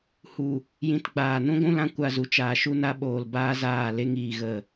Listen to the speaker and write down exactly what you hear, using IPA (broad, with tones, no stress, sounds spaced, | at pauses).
h u˨ | j ĩ˧ t ɡ͡b aː˨ n ũ˦ ɡʷ ũ˦ l ã˧ kʷ a˧ z u˨ t͡ʃ aː˨ ʃ u˧ n a˧ ɓ oː˨ l b aː˦ z aː˦˨ l e˧ ŋ iː˨ ɣ ə˨